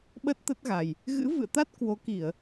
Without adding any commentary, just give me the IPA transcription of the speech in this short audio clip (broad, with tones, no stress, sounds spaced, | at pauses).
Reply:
ɓ ə˦˥ t̚ t̪ ə˦˥ t̚ ɣ a˨˩ j | ɣ ɨ̰˧˥ v ɨ̰˧˨ ə̯ t̪ a˦˥ t̚ k w o˨˦ k i˧˩˨ ə̯